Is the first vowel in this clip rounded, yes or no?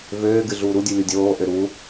yes